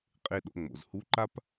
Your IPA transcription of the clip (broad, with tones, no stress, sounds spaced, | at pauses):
qʼ e˧ ɗ o̰˩˧ ŋ͡m o̰˩ z h u˧˥ ǃ a˥ p